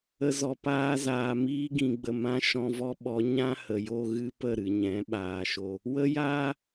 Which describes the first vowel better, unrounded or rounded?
unrounded